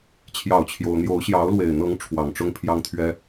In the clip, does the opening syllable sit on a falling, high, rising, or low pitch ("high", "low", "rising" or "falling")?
falling